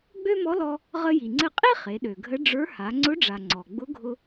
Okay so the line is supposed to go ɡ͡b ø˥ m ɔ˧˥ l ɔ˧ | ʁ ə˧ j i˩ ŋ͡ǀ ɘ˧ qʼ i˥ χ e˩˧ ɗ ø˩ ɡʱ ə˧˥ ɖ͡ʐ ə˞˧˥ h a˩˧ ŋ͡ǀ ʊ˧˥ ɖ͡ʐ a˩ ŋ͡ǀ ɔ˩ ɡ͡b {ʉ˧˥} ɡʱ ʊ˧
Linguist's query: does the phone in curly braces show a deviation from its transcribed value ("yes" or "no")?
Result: yes